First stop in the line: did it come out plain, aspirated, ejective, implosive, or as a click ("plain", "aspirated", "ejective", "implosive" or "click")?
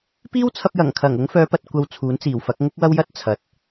plain